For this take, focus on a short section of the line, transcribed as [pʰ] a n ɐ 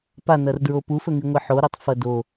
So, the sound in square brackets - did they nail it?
no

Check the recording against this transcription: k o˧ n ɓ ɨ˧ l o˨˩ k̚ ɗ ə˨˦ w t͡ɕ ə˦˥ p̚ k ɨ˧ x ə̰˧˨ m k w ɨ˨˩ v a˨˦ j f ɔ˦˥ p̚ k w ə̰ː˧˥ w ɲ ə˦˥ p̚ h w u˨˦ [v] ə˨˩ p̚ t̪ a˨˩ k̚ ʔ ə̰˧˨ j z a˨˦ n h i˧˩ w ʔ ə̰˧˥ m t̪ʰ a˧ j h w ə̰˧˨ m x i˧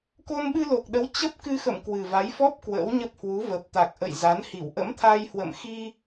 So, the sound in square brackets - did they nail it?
yes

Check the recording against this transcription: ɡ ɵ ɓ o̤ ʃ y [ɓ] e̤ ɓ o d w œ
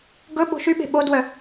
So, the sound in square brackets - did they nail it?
yes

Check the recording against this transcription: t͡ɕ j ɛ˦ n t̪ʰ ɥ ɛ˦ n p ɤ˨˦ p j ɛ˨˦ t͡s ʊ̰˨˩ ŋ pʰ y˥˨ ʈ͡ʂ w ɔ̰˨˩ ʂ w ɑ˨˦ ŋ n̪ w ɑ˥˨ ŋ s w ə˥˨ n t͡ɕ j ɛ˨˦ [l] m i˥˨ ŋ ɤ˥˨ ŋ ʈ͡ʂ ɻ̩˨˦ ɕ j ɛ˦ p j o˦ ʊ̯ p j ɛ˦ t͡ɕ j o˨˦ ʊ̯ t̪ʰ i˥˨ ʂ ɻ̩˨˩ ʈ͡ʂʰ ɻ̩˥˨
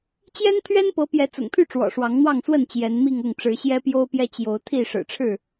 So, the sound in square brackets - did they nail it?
no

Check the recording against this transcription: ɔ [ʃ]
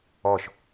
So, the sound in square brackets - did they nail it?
yes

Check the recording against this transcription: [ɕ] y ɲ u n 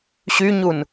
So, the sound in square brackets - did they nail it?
yes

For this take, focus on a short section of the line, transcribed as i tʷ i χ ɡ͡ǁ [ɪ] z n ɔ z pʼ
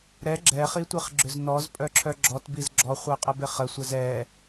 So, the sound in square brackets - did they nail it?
no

